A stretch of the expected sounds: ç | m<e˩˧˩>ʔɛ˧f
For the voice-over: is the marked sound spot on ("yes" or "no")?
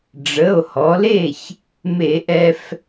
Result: no